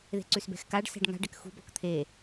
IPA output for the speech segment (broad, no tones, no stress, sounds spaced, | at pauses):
ð e̤ ǀ ʉ s b ɛ̤ x k a ɖ s ɛ̤ ɖ ŋ a̤ ɖ ɛ k x ṳ b ɔ k t̪ʰ e